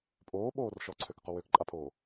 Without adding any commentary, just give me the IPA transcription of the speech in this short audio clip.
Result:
pʼ oː ɓ oː r ʃ ɔ ǀʰ ø k q o w ø k ǃʼ a pʰ oː

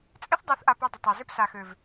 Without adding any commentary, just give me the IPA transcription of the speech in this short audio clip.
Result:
t͡sʼ ɪ˦ θ dˤ e˨˦ θ ʔ a˧ p o˧ dˤ ɪ˨ tˤ a˨ z ɪ˦ p s a˨ x ø˨ v

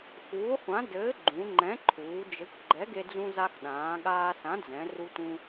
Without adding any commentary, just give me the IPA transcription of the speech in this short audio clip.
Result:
x uː˨˥ χʷ ã˨˥ d ɘː˨˥ ɡ͡ǃ ũ˩˧ ŋ͡ǃ ɛ̃˨˥ ǃʰ uː˩˧ d͡ʒ ɘ˨˥ kʷ ɡ͡ǃ ɛ˨˥ ɡ e˧ d͡z ũ˧ z a˧ x ɗ ãː˩˧ ɠ aː˧ s ã˨˥ d͡z ɛ̃˩˧ r u˧ t ũ˧

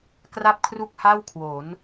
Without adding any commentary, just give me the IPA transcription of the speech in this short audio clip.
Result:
k r a˥˩ p̚ kʰ r u˥˩ k̚ h a˥˩ w kʰ w o˩˦ n

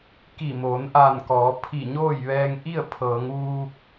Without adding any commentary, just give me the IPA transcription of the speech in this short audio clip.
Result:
k i˧˩ m oː˩˧ n ʔ aː˧˩ n k ɔː˩˧ pʰ i˧˩ ɲ oː˥˨ j ʋ ɛː˧ ŋ ʔ i˥˨ ə̯ pʰ ɤː˩˧ ŋ ʋ uː˧ k̚

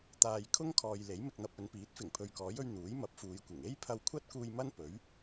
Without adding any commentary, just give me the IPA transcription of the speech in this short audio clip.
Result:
t̪ aː˧ j kʰ ʊ˥ ŋ kʰ ɔː˨ j l e˨˥ j m ɪ˧ k̚ n̪ ɐ˧ p̚ ɵ˨˧ n p iː˨˥ t̚ f ɪ˨˩ ŋ pʰ ɵ˨ ɥ k ɔː˨˥ j ɵ˧ ɥ n̪ uː˨˥ j m ɐ˨˥ p̚ f uː˨˧ j kʷ ɪ˨˩ ŋ e˥ j pʰ ɐ˧ w kʷʰ ɐ˥ t̚ k uː˧ j m ɐ˥ n p ɵ˨˥ ɥ

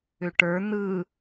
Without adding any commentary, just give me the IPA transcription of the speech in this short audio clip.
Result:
ʏ ʈ ə˞ n̪ ɯ

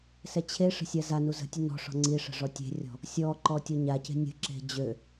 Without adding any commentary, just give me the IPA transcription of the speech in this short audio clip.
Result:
s ɛ t͡ɕʰ e ʂ ə̤ sʲ a z a n u z ə̤ tʲ ə n ɔ̤ ʂ ɔ̤ ŋ͡ǀ i ʂ ə̤ ʐ ɔ tʲ e̤ rʲ ɔ̤ | sʲ ɔ ǃ ɔ tʲ ɔ ɲ a c e̤ nʲ ə̤ ǁ e̤ d͡ʑ ø

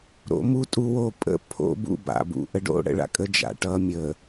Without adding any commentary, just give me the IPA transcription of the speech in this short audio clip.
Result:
ɾ o̰˨˦ m u˦ tʼ u˦ w o˦˨ pʼ ə̰˦ pʰ o̰˦ b ṵ˦˨ b a̰˨ b ṵ˨ ʔ ə˦ ɖ o̰˦ ɽ ə̰˨ ɭ a̰˦ kʼ ə˦ d͡ʒ a̰˨ ʈ ʌ˦ mʲ ə˨

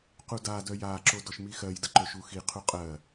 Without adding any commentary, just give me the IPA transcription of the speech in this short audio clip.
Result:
q u d a d œ j a ǁ o d ɔ ʃ m i x ɜ j d ə ǃ ɵ ʃ u x i qʰ u qʼ ɜ

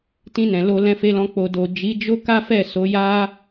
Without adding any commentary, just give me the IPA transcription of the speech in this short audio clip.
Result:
t ĩ˧ n ɛ̃˨ l o˧ l ɛ̃˧ f e˧ l ɔ̃˧ k͡p o˨ d o˨ d͡ʒ i˨˦ d͡ʒ o˦ k a˦ f ɛ˦˨ s o˨˦ j a˦

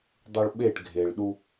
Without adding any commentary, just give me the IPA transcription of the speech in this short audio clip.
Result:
dˤ ɯ ɭ ɓ e ʈ ɡʱ e ɭ ɗ u

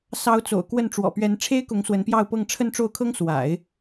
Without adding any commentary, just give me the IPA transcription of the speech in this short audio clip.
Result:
s ɑ˧˥ ʊ̯ t͡s o̰˨˩ ʊ̯ k w ə˥˩ n ʈ͡ʂ w ɔ̰˨˩ p ɥ ɛ˧˥ n ʈ͡ʂʰ e˥ ɪ̯ k ʊ˧˥ ŋ s w ə˧˥ n p j ɑ˥˧ ʊ̯ p ɤ˥˧ ŋ ʈ͡ʂʰ ə˥˧ n ʈ͡ʂ o˥˩ ʊ̯ kʰ ɤ˥ ŋ s w a̰˨˩˦ ɪ̯

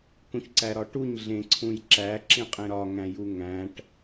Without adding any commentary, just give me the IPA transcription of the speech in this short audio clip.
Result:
k ũ ç ǀ æ ɾ ɒ ʈ u ɲ ɮ ẽ ǀʰ ũ j ǁ æ ǁ ĩ qʼ ẽ ɾ ɒ ŋ æ̃ j u ŋ æ̃ ʈ

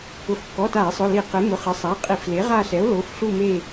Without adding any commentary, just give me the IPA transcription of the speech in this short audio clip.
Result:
ʊ˩˥ f kː ɔ˩˧˩ t a˧˩˧ e̯ sˤ ʊ˩˧˩ l i˧˩˧ q ɪ˩˥ m ʊ˩˧˩ χ ɪ˩˥ sˤ a˩˧˩ qʼ i˧˩˧ f l e˩˥ ʁ a˦˨ ɬ ɛ˩˥ o̯ l o˩˧˩ f ɬ u˦˨ m e˦˨

